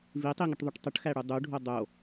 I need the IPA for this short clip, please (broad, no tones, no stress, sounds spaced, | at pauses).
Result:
v i tˤ i ŋ ə ʈ ðˤ u ʈ tˤ ə ʈ x æ ɽ u dˤ u ɖʱ o dˤ o